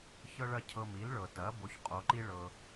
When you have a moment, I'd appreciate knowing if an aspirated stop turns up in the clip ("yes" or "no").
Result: yes